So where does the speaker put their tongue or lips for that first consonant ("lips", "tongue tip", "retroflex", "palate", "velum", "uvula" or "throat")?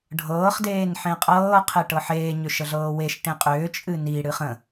retroflex